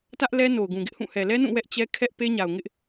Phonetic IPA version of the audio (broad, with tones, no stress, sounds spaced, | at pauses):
t ä˦ ʔ l ɛ˦ n o˨ ʊ̯ ɡ ũ˨ ɡ ɪ˦ ʔ h ũ˦˨ h ɛ˨ l ɛ˦ n ũ˦˨ w ɛ˦ ʔ t͡ɕ ɛ˦ kʰ ɛ˦ ʔ p e˦ ɲ a˨ ʊ̯ ŋ ɪ˦ ʔ